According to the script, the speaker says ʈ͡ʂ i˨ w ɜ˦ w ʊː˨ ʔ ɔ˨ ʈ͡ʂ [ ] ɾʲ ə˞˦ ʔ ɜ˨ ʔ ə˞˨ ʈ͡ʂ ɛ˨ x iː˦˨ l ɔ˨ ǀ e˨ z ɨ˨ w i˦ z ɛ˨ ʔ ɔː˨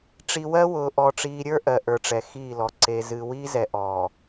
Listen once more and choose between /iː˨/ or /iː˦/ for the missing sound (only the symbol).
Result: iː˨